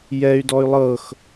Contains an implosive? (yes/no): no